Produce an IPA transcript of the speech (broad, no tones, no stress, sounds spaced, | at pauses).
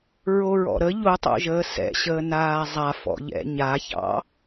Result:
ɹ o ɹ ɔ̰ ɾ ə ʎ o tˤ o̰ ʒ əː s ɛ̰ ɕ əː n aː zˤ a f ɔ̰ ʎ ɛ̰ ɲ a ç ɑ̰